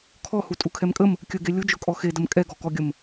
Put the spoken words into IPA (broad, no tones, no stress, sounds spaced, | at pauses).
kʰ ɔ h u tʼ u kʰ ɛ m kʼ ə m | kʲ ə ɡ e lʲ ʊ d͡ʒ ʊ kʼ ɔ x e d ə m kʼ ɛ ɡ ɔ k ɔ ɡʲ ə m